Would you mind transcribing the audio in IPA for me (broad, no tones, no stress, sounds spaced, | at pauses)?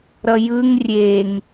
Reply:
ɾ ʌ j ɯ ŋ rʲ e ŋ